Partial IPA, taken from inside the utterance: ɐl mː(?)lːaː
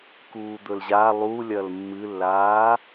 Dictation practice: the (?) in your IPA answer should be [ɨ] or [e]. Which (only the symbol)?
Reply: ɨ